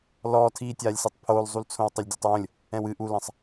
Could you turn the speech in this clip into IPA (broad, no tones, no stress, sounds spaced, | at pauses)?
l ɔː tʰ iː tʲ aː lʲ s i tˤ pʰ oː l zˤ u l t͡sʰ õ w tˤ ɐ lʲ dʲ o tˤ w õ lʲ | ɛ̃ w ɨ ʔ u l ɐ̃ sˤ